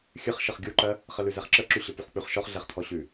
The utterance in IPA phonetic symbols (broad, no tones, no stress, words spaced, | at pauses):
xʲɨχ ʃəχɡʲuǃɜ | χəlʉzɛχǁə ǁʉɕəpuχk͡pʉχ ʃɔχɮɛχt̪ʰɔ ɕʉ